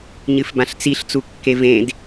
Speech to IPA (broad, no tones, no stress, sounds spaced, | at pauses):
ɲ ɨ f b ã ɬ t͡s i ɬ t͡s u kː e v ẽ d